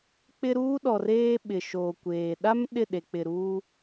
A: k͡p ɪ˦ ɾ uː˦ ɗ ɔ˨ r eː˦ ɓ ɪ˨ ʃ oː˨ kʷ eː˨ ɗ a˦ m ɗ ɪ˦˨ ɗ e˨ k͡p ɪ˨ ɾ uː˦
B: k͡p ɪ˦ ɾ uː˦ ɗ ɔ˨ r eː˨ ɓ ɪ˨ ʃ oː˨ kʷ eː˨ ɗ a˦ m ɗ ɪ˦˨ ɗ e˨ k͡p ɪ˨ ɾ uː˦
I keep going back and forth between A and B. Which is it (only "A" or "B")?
A